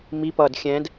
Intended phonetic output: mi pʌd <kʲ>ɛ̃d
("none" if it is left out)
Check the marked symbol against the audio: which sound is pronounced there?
xʲ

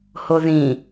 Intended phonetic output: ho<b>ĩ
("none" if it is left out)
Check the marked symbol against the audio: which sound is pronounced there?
ð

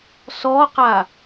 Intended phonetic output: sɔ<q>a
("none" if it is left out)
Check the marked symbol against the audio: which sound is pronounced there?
q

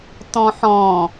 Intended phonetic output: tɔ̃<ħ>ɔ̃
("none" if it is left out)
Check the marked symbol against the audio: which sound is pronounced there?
ħ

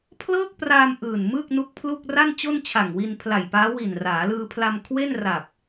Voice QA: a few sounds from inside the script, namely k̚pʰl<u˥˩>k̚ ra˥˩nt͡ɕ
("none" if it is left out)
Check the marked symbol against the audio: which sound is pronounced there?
u˥˩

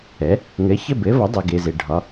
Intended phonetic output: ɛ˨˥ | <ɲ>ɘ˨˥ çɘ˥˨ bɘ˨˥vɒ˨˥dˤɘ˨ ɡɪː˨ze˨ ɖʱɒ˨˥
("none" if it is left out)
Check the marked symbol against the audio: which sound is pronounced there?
ŋ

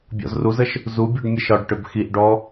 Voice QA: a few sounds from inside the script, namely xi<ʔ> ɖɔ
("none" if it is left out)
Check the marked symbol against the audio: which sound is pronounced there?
ʔ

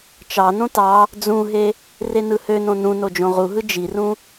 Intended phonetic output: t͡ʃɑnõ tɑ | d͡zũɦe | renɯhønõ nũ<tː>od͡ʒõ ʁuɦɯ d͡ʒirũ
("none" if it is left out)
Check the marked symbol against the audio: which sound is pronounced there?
n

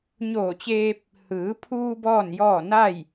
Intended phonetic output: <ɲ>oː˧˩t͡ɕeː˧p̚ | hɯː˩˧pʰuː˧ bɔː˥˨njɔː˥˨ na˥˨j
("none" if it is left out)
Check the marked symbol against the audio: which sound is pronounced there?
ɲ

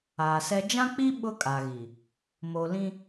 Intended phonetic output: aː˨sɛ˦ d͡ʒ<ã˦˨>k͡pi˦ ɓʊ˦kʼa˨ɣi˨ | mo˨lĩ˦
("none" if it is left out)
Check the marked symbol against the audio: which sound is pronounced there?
ã˦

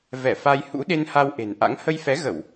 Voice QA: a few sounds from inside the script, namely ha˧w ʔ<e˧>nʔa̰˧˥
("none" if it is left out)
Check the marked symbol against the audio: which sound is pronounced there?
e̤˨˩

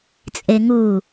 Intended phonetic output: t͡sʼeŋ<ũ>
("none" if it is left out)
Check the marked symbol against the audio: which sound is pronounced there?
u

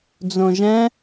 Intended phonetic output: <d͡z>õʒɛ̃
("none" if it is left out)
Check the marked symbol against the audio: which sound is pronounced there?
d͡z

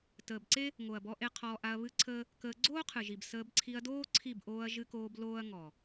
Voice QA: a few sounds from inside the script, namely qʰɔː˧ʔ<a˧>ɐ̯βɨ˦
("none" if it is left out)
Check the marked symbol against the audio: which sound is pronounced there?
a˧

